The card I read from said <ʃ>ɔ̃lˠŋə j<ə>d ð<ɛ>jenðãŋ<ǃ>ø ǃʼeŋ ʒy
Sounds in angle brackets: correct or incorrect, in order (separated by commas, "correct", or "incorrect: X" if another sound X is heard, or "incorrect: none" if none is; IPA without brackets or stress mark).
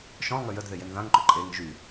correct, correct, incorrect: e, correct